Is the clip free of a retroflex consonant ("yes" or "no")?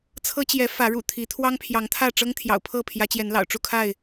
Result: no